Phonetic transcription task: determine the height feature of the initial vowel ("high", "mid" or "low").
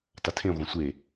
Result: low